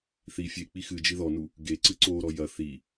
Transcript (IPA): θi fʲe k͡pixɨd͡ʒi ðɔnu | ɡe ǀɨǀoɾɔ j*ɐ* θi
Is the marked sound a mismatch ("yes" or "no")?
no